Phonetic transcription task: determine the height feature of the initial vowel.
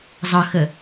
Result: mid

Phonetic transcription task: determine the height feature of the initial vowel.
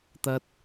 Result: low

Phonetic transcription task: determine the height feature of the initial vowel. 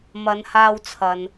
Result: low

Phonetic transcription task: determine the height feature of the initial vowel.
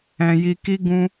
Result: mid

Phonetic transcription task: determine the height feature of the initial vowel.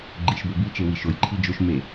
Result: high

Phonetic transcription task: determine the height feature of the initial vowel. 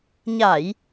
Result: low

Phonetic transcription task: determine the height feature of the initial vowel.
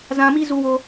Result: low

